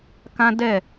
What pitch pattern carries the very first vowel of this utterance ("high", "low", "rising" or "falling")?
high